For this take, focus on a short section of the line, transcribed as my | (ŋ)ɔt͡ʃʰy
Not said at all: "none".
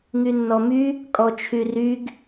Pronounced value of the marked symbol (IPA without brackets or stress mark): kʼ